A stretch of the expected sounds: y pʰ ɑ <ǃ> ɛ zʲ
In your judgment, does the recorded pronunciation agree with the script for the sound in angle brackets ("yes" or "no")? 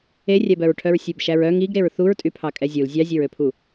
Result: no